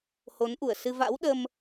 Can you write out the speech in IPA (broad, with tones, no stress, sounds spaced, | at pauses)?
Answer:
h o˨˦ n ʔ u˧˩ ə̯ s ɨ˧ v a̰˧˥ w ɗ ə˧ m